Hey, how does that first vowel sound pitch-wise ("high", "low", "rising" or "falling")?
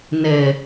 low